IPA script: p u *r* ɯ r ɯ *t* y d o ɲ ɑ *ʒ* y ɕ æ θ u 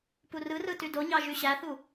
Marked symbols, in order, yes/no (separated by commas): yes, yes, yes